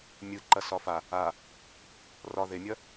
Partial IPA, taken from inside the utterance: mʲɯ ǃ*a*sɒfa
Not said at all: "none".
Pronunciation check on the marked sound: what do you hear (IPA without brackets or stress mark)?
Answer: ɐ